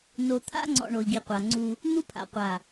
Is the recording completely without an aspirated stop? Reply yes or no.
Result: no